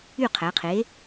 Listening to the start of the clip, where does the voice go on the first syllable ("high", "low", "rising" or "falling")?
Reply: falling